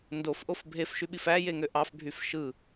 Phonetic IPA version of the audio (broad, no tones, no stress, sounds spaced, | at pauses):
n d o f ʔ o f bʱ e f ʃ y ɓ i f æ j e ŋ ø ʔ ɑ f bʱ y f ʃ ɯ